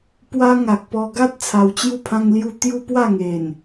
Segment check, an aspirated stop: present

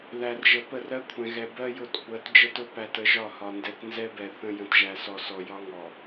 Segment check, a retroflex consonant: absent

